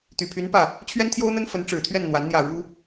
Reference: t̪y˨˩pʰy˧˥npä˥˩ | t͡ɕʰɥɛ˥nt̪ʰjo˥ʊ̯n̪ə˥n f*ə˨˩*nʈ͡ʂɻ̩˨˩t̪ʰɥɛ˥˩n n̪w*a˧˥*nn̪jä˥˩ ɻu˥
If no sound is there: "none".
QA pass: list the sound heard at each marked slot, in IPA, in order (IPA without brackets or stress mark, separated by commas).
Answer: ə˧˥, a˧˥